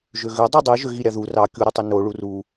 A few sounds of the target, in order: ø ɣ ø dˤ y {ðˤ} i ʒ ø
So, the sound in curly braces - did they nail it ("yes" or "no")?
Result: no